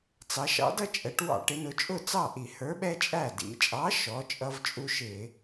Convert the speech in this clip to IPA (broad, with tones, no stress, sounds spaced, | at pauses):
t͡s ɑ˩˧ ʃ ɑ̰˨˥ d ʌ˦ t͡ʃʼ ɛ˩˧ ʈ w ɑ̰˧˩˧ ʈ ɪ˩˧ n ʊ˩˧ t͡ʃʼ ʊ˥˩ t͡s ɑ˥˩ ʔ i˧˩˧ h ə˞˨˥ ɓ ɛ˦ t͡ʃʼ æ˥˩ d ḭ˩˧ t͡ʃʼ ɑ˨˥ ʃ ɔ˩˧ t͡ʃʼ ʌ˦ v t͡ʃʼ u˦ ʃ ɪ˧˩˧